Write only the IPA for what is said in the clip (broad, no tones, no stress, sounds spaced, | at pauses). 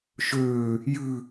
ʃ øː | j ʉ